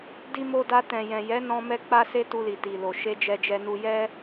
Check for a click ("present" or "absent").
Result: absent